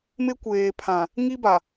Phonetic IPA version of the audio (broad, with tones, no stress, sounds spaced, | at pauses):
m ɪ˦ kʷ eː˨ pʰ ã˨ | ŋ i˦ b a˨